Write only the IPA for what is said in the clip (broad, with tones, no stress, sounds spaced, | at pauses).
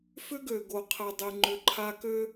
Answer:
f ʏ˦ ɡ ø˨ ɡ o˨ qʰ ɛ˨ dˤ i˨ ŋ͡ǃ ʏ˨˦ ǃʰ a˦ k ø˦